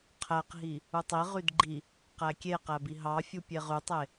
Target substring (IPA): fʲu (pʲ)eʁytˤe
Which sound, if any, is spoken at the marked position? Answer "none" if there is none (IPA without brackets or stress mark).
pʲ